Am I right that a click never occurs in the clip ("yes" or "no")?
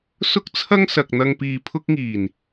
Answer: yes